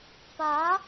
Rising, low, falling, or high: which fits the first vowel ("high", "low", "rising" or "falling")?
rising